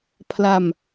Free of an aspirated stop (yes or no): no